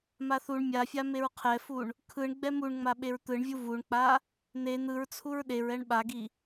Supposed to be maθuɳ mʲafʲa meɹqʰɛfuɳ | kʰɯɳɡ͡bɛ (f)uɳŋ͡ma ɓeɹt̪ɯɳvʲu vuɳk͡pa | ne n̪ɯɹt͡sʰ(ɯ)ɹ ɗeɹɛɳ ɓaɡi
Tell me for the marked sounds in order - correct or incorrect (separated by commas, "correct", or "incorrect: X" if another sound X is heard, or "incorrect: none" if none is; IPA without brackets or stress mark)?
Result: incorrect: m, incorrect: u